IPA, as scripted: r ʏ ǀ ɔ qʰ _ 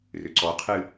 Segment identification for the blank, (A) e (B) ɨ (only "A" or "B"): B